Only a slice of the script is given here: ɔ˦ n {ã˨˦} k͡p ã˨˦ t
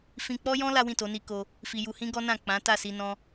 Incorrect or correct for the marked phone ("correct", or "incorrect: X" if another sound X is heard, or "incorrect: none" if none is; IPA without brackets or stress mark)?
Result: incorrect: ã˦˨